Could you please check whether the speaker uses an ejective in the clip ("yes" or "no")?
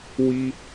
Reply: no